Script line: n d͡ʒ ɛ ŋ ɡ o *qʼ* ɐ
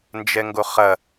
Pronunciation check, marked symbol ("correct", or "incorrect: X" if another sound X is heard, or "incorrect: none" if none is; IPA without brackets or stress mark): incorrect: χ